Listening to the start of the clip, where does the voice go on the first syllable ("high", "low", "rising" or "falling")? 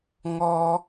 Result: high